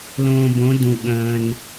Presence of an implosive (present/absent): present